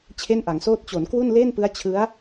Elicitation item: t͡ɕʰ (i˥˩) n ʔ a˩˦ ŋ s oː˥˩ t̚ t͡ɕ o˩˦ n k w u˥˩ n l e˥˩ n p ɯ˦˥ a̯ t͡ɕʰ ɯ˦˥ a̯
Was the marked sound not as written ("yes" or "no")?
yes